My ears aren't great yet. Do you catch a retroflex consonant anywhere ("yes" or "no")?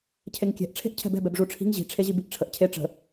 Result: yes